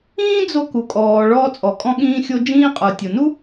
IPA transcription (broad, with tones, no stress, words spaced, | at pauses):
ĩː˥d͡zo˧ku˩kʼɔː˩ ɭɔː˧t͡sʼɔ˩kʼɔ̃˧ɠĩː˧ xʲo˧ d͡ʒĩː˧qʼə˞˩ tʲo˩nu˥